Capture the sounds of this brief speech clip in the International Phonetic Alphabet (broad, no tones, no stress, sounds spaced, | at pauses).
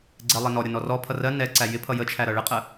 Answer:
ɡ͡ǀ ɛ lˠ ɛ n ɔ ɾʲ ʌ n ɔ r ɔ pʰ ʌ r ɜ n ɛ ǀ æ j ɪ pʰ ʌ j ə t͡ʃʰ æ ɾ ʌ ɭ ɪ qʼ ə